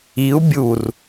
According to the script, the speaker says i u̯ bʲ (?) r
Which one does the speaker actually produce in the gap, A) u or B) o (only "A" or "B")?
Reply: A